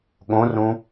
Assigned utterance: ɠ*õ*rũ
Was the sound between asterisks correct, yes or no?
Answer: yes